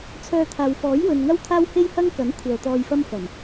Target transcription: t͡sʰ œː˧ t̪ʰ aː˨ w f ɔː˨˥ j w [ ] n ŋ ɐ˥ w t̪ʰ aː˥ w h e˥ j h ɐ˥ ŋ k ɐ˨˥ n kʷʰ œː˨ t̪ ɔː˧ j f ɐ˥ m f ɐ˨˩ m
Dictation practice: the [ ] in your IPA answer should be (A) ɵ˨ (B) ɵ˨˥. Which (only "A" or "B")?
A